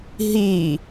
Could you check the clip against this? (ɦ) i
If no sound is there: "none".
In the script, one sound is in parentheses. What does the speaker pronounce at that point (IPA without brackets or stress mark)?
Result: ɦ